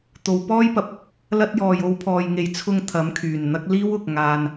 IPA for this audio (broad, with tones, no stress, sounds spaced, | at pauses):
t̪ o˨˧ w p ɔː˥ j p ɐ˨ p̚ | l ɐ˥ t̚ j ɔː˨ j o˨˧ w pʰ ɔː˨ j ŋ e˨ j t͡sʰ ʊ˧ ŋ t̪ʰ ɐ˨˥ m kʰ yː˨˩ n n̪ ɐ˥ k̚ l iː˥ w ʊ˨ k̚ ŋ aː˧ n